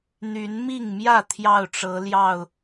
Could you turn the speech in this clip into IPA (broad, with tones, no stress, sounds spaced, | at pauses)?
n̪ y˨˦ n m i˥˨ ŋ m j ä˥˨ t̪ʰ j ɑ˥˨ ʊ̯ ʈ͡ʂ ɤ˨˦ l j ɑ˥˨ ʊ̯